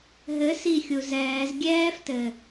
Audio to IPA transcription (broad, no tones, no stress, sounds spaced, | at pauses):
ɦ ɘ s i xʲ u z ɛː z ɡʲ ɛː f t ɘ